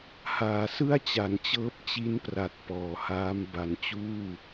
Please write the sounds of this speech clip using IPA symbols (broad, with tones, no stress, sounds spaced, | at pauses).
h aː˩˦ s ɯ˥˩ a̯ t͡ɕ a˩˦ n t͡ɕ ɤː˦˥ p̚ t͡ɕ i˦˥ n p r a˨˩ t̚ p ɔː˩˦ h aː˦˥ m b a˨˩ n t͡ɕ uː˥˩